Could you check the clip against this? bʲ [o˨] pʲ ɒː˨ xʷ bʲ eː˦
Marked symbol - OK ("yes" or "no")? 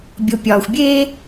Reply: yes